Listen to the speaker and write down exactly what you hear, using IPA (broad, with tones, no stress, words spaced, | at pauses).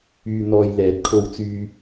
yː˨n̪ɔː˨j lɛː˨˥t̚kʰo˧wt͡syː˧